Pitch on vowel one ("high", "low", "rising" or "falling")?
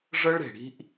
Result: high